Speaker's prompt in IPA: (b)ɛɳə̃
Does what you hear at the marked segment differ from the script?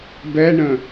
no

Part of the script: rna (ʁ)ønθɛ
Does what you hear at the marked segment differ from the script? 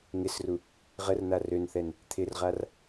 yes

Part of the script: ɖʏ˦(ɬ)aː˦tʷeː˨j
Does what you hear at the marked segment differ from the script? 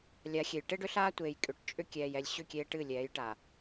no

